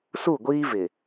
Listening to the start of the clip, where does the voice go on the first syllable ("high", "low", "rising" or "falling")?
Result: falling